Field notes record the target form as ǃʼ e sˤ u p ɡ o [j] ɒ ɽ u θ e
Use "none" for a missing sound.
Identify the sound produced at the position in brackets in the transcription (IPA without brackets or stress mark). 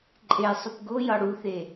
j